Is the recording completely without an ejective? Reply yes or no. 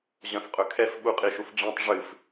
no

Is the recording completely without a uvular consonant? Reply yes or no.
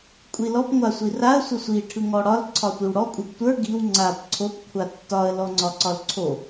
yes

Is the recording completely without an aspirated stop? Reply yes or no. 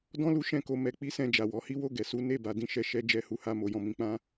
yes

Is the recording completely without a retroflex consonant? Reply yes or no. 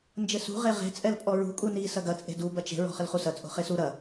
yes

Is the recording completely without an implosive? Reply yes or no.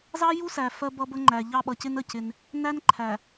no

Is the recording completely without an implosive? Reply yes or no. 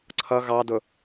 yes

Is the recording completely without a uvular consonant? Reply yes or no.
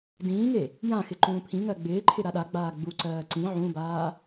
yes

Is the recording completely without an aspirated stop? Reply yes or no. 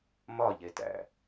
yes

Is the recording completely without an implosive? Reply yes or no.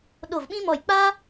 no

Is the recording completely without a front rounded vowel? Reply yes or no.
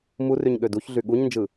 no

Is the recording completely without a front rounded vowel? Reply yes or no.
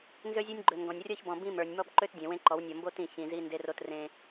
no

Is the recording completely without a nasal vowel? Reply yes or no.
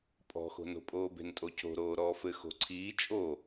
yes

